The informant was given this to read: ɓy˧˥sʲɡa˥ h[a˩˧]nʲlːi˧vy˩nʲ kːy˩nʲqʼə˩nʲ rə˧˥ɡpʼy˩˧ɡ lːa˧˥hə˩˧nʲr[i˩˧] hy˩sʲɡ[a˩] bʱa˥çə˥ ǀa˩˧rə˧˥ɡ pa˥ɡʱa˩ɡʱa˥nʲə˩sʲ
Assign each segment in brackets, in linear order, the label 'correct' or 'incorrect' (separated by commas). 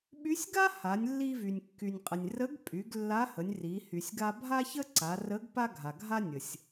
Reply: correct, correct, incorrect